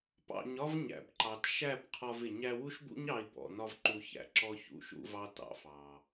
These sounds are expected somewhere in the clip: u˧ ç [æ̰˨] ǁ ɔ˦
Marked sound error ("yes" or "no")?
no